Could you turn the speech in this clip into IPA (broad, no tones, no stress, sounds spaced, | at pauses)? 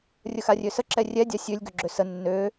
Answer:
rʲ ə x a rʲ ø s ə ǁ ɛ rʲ ɛ dʲ a sʲ ø lʲ ɡ ø ɡ͡ǁ ø s ə nː ø